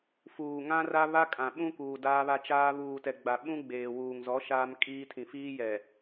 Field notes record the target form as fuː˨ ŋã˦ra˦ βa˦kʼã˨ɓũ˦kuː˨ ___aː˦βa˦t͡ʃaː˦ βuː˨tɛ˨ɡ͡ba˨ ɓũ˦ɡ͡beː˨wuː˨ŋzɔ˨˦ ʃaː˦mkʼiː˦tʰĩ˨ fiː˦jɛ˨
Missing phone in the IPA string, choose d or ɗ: d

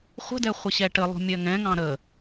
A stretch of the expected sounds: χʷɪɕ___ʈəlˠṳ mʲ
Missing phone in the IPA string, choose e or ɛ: ɛ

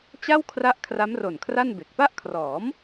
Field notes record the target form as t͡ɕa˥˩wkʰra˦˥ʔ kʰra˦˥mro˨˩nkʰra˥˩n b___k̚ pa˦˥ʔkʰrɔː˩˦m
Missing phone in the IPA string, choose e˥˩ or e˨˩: e˨˩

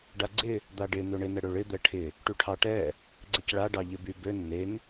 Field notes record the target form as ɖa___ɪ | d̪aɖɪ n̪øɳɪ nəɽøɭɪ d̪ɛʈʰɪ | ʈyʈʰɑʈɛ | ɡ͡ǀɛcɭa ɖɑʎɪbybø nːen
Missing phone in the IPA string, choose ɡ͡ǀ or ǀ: ɡ͡ǀ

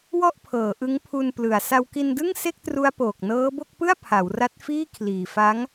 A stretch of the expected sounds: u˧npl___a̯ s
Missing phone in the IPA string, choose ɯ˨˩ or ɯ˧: ɯ˨˩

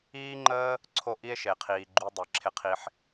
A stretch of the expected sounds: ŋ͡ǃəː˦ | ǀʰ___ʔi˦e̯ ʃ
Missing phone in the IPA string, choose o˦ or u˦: o˦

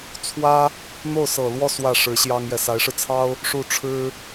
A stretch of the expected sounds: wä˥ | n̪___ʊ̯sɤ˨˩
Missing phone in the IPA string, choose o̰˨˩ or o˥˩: o˥˩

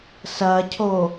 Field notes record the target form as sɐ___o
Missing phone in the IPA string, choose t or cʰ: cʰ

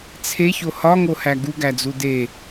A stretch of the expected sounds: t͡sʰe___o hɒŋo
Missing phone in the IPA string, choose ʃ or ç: ç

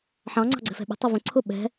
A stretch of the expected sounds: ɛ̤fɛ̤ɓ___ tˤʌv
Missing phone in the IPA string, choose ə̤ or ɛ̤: ɛ̤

